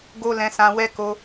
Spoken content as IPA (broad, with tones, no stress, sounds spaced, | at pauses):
ɡ o˦ l ɛ̃˧ s ã˧ w ɛ˦ k o˧